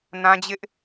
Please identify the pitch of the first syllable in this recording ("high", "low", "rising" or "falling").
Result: high